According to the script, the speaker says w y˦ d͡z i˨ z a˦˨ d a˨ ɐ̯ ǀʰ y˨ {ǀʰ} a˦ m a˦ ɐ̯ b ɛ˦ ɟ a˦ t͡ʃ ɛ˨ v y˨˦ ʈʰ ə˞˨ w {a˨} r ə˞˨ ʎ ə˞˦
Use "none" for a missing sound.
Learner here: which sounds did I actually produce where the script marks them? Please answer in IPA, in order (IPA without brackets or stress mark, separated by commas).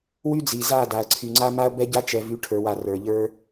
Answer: ŋ͡ǀ, a˨